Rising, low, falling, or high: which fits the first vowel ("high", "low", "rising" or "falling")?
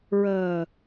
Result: low